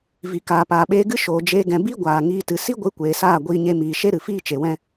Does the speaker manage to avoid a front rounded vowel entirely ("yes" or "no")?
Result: yes